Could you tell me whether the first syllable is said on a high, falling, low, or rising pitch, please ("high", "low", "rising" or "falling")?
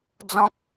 high